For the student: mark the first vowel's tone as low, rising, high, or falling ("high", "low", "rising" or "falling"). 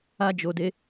high